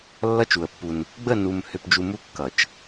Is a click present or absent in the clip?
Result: absent